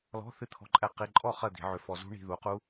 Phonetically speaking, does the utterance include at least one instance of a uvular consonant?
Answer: yes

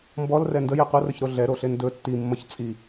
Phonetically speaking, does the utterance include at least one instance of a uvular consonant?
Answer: yes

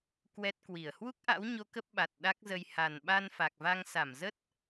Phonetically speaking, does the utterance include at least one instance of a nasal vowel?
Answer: no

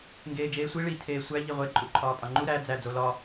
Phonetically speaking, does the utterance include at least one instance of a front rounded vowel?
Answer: no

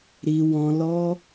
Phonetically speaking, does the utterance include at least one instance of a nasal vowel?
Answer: yes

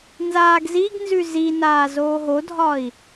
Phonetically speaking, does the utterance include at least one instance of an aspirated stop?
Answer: no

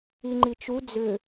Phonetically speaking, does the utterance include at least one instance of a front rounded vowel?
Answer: yes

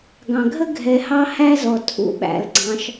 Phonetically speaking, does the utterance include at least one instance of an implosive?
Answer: yes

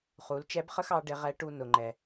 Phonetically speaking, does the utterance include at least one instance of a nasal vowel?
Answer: no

